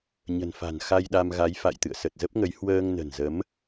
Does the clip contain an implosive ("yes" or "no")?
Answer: yes